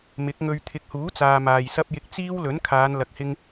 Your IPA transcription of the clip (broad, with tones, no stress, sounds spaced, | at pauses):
m ɪ˨˥ k̚ ŋ ɵ˧ ɥ t̪ʰ ɪ˨˥ k̚ h uː˨˥ t͡s aː˨ m aː˨ j s ɐ˥ p̚ j ɪ˧ k̚ t͡s iː˥ w l ɵ˨˥ n kʰ aː˨˧ n l ɐ˧ k̚ h ɪ˥ ŋ